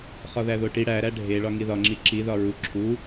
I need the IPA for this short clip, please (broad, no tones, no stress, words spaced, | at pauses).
χɒðæðoʈi ɽæɾæ ɖʱe ɭɒŋiðɒŋ͡ǁi ǁiðɒ ɹu ǁʰu